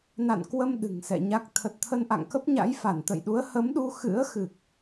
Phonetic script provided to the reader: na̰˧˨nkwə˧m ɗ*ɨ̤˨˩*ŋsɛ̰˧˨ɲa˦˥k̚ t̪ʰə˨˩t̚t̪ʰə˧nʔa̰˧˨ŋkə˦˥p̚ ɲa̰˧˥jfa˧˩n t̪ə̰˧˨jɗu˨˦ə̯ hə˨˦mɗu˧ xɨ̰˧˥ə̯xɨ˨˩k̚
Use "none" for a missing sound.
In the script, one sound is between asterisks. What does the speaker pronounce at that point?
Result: ɨ̤˨˩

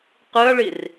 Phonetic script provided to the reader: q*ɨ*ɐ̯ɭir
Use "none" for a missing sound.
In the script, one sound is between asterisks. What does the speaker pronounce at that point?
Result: ɨ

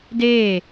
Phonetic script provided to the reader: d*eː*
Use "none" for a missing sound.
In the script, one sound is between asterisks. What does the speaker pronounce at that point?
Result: eː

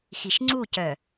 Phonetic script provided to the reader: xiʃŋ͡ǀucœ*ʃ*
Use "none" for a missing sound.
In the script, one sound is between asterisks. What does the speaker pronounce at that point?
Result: none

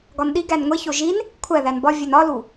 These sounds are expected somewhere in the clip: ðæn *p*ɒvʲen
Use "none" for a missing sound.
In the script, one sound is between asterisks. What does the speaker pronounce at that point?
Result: b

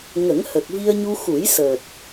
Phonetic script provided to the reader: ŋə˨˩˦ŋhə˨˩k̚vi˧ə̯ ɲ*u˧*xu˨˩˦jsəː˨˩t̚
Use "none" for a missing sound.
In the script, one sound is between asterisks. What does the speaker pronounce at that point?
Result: u˧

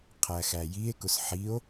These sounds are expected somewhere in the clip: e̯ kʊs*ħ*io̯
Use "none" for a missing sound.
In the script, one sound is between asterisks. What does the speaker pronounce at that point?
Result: ħ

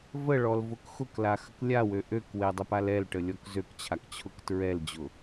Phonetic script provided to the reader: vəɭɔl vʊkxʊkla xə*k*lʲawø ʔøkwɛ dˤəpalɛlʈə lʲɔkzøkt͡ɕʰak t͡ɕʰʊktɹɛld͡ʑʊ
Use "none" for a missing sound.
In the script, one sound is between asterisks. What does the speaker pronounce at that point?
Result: k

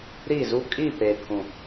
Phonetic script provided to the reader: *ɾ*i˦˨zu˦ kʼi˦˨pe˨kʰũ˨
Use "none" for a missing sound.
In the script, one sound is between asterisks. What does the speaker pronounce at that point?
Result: ɾ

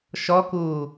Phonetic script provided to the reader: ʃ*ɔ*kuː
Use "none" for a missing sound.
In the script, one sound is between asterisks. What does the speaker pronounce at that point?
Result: ɔ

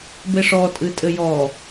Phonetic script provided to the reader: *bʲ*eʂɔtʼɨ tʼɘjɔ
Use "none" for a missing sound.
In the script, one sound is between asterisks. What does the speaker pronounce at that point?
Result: b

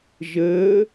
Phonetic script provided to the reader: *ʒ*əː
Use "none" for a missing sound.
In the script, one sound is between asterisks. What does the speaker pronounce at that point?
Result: ʒ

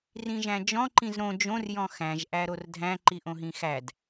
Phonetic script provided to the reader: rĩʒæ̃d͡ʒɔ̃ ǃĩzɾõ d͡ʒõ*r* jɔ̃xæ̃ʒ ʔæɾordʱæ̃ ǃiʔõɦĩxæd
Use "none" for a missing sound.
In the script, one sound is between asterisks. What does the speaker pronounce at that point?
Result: r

